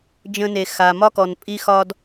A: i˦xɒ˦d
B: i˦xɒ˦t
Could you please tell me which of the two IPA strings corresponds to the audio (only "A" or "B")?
A